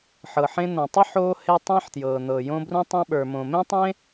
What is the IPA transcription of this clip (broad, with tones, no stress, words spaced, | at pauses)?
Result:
ħɤ˩ħẽ˧nõ˩tˤə˥ ħoː˧he˧ tˤẽ˧ħtjɤː˩n̪ɤ˩ jõ˧ brũ˧tˤõ˧ ɓə˞˩mõ˩mẽ˥tˤẽ˥